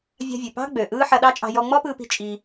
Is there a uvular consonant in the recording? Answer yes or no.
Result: no